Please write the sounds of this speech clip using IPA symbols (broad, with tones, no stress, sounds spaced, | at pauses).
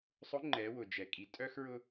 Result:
sˤ ʊ˧˥ ŋ͡ǃ ɛ˩˧ w ʊ˩ d͡ʒ ɛ˩ kʼ i˩˧ tʼ œ˥ x ɹ ʊ˥